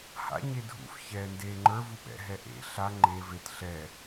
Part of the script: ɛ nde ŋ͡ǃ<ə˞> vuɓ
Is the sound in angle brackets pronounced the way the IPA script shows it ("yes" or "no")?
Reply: yes